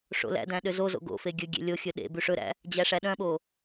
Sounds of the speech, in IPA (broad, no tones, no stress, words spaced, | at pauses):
ʂo̰læ̰dæ̃ ɗøzozo̰ ɡo̰fe ɡʲɵ ɡʲḛlʲoxʲɵ ɗḛ bʉʂɵɾæ̰ | d͡ʑæʂæɗœ̃ɓo